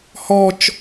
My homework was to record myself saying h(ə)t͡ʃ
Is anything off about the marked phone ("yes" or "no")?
yes